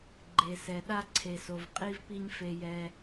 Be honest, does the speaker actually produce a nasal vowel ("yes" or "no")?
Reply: no